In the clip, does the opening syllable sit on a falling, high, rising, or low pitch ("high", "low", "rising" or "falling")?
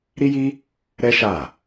high